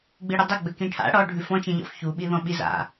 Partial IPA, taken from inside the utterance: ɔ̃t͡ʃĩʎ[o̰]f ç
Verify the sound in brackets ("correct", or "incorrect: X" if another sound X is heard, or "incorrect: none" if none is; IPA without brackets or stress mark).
incorrect: ɔ̰